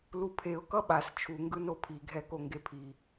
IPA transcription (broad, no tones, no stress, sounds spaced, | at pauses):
l u pʰ e ʊ̯ k ʌ ɓ a s t͡ʃʰ u ŋ ɡ ɯ n o pʰ i ɡʱ ɛ k o ŋ ɡ e pʰ i